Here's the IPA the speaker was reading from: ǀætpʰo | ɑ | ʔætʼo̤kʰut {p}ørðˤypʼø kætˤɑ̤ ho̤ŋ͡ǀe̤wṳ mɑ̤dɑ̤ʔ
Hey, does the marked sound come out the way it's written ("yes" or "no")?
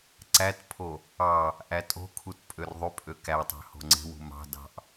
no